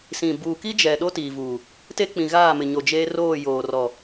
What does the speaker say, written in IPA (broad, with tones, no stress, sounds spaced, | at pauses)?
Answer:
s ĩ˨ b uː˨ k i˦ d͡ʒ ɛ˨ ɗ o˦ t iː˨ v uː˨ | t e˦ k͡p ĩ˨ ɣ aː˦˨ m ɪ˨ ɲ o˨ d͡ʒ eː˦ r oː˦˨ j oː˨ r ɔ˨